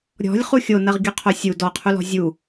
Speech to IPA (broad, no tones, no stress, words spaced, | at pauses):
ɾʲɔ̤lʲ χuxʲonɐʁ ɡʲɔqʰosʲu dɔqʰulɔ̤ zʲu